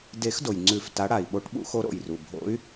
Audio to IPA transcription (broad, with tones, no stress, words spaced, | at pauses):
de˨˩˦x do˩jŋ͡ǀʉ˨˩˦f ta˨˦ ɽa˩i̯ ɓo˨˦ʈɓṵ˨˩˦xo˨˦ ɾo̰˩jru˩ bʱo̰˨˦y̯